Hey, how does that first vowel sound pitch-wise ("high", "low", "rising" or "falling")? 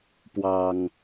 low